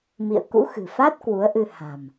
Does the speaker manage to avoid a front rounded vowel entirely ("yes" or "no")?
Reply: yes